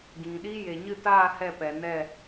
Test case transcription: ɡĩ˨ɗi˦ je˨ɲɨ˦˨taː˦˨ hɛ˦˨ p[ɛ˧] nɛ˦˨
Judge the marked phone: incorrect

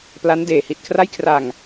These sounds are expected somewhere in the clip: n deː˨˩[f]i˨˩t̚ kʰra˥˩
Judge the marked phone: incorrect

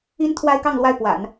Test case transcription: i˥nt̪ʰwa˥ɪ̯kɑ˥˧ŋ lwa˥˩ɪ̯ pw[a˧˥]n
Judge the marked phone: incorrect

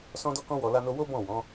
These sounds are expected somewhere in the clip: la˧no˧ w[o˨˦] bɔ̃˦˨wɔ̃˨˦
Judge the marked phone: incorrect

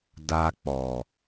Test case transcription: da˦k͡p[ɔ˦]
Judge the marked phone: incorrect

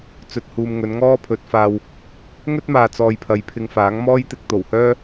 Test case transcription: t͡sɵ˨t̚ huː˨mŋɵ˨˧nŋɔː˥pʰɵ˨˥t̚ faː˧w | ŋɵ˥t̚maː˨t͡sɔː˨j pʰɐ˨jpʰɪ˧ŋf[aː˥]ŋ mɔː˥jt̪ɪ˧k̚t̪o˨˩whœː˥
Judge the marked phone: incorrect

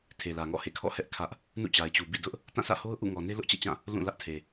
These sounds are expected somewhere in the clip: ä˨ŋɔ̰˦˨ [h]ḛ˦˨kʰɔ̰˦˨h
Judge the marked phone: correct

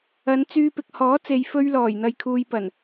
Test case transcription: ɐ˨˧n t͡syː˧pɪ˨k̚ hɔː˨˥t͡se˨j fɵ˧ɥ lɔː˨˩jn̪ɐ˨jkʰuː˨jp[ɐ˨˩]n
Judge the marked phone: correct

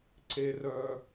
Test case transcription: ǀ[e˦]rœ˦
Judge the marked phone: correct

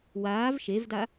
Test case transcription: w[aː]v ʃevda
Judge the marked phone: correct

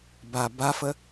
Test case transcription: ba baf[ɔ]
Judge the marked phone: incorrect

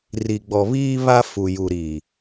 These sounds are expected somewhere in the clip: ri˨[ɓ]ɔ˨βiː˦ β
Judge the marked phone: incorrect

